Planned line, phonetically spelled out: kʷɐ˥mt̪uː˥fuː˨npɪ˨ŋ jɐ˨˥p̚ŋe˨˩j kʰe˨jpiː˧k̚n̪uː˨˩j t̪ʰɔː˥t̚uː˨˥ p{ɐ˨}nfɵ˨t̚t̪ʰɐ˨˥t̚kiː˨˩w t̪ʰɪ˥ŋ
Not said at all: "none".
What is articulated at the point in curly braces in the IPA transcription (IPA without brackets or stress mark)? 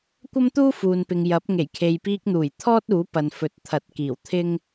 ɐ˨